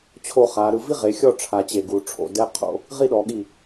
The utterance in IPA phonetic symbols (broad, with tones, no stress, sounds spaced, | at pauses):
t͡ɕʰ o˧ χ a˩˧ ɾ ɯ˧ v i˥ ʁ e˩˧ xʲ ɔ˥˧ ʈ͡ʂʰ a˧ t͡ɕ e˧˩ ɡ u˩˧ ʈ͡ʂʰ o̰˩˧ d ɛ˥ qʰ o̰˥ | ʁ i˥˧ ɗ ɔ˩˧ ɠ i˧˩